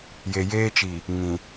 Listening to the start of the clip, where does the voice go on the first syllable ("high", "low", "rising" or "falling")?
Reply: low